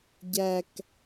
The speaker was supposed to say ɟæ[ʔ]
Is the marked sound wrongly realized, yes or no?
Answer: yes